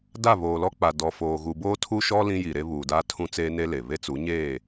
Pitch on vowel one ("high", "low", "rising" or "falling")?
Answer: falling